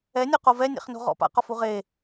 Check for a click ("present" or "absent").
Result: absent